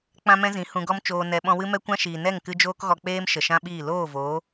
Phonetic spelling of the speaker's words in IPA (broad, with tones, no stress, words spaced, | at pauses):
k͡pã˦mɛ̃˦zĩ˨˦ hũ˧ɡɔ˦m t͡ʃoː˧nɛ˧ ɓɔ̃˧wɨ˦mɛ˦ kʷã˦ʃiː˨ nɛ˦˨ŋkɨ˧ d͡ʒoː˧kɣɔ˨k͡peː˧m ʃə˨ʃã˦ɓiː˦˨ loː˦˨voː˨˦